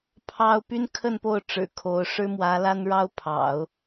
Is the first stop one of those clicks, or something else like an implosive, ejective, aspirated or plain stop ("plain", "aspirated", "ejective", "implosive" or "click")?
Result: aspirated